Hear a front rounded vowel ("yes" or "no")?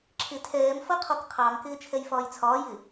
no